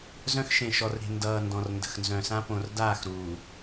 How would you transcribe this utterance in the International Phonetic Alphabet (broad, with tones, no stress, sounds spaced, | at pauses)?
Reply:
z œ̃˦ x ʃ ẽ˨ ʃ ɔ˨ r ɾ e̤˨ n d ʌː˨ n d ɔ̃˨ r n d ə̤˨ x n z œ̃˨ s ã˦ p õ˨ r d aː˦˨ x ɾ uː˨